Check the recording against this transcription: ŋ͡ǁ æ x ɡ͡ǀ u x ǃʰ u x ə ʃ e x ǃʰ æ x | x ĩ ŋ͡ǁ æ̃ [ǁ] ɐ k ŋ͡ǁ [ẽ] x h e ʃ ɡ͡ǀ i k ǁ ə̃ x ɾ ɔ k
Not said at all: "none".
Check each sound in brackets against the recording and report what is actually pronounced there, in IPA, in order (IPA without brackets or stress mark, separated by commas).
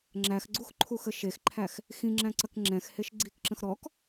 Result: ǀ, ɛ̃